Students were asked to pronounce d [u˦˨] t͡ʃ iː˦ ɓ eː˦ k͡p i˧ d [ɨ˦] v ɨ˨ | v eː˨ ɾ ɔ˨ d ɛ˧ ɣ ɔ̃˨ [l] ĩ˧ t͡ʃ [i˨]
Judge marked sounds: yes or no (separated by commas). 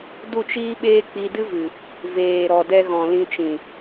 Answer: yes, yes, yes, no